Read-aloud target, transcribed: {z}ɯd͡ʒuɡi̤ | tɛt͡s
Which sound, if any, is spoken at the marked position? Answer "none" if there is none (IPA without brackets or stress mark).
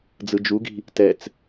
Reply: d͡z